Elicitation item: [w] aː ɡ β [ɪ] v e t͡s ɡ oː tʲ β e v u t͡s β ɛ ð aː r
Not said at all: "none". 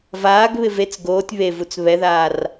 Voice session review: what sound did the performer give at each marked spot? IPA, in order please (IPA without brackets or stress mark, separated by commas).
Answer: v, ɪ